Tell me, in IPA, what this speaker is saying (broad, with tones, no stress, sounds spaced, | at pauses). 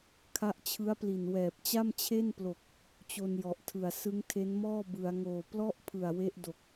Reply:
kʰ a˦˥ ʔ t͡ɕʰ ɯ˦˥ a̯ p l i˨˩ n w ɛː˨˩ p̚ t͡ɕ a˥˩ m t͡ɕʰ e˥˩ n p l o˨˩ k̚ | t͡ɕ o˧ n j ɔ˨˩ ʔ tʰ ɯ˨˩ a̯ s ɯ˦˥ ŋ tʰ e˦˥ n m ɔː˥˩ b ɯ˩˦ a̯ ŋ oː˨˩ p l ɔ˥˩ ʔ pʰ ɯ˨˩ a̯ w e˦˥ ʔ d o˨˩ k̚